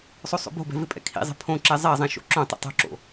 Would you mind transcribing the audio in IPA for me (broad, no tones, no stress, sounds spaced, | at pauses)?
sˤ o sˤ o̰ b o̤ b ɛ̤ v ɪ pʼ ɛ̰ kʰ ḭ zˤ ɛ̤ pʰ õ ǁ ɛ zˤ ɛ zˤ ɛ̃ ʃ o̰ ǁ õ tˤ ḭ tˤ o̤ ǁ o̰